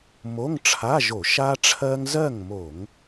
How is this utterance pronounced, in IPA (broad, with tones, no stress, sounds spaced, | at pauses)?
m o˧˥˧ ŋ ʈ͡ʂʰ a˧˥˧ ʒ o˧˩˧ ʃ a˥ ʈ͡ʂʰ ɜ˥ ŋ z ɜ˥˨ ŋ m o˧˩˧ ŋ